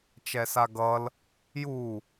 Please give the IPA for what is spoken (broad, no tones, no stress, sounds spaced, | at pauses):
t͡ʃ ɛ s a ɡ ʌ l | j u